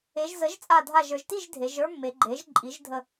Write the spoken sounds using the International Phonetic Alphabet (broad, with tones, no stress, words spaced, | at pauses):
e˩˧ʒzə˩˥ʒ t͡sʼa˧˩dʱa˧˩ʒə˞˩˧ʒti˥˨ʒ dʱe˩˧ʒ ə˞˥mːe˩˧ɡ͡ǃe˩˥ʒ ǃʼi˩˥ʒdʱə˧˩